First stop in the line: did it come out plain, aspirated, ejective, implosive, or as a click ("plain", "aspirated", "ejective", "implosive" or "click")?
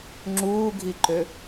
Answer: click